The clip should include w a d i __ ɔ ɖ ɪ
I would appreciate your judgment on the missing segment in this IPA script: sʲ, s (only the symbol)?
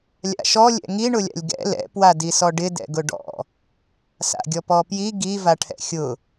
s